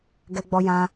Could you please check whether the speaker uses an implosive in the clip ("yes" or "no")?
no